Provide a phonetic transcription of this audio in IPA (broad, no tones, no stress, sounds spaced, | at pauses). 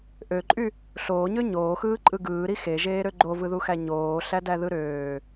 ʔ ø ǃʼ y | ɬ oː ɲ ø ɲ oː x ɯː ǃʼ ɯ ɡ ɯː ɾ i x e ʒ eː ɾ ø ɡ͡ǃ o v ɯ ð u x æ ɲ oː ɬ æ d æ ð ɯ ɾ øː